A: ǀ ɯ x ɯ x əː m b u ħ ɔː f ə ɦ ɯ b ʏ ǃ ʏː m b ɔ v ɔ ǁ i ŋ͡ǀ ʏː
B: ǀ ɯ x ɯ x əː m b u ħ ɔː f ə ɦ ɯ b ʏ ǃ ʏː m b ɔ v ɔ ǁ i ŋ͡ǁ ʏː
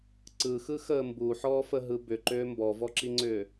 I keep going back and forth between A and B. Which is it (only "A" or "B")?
A